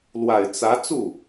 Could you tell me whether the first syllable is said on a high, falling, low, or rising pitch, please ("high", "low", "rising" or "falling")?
low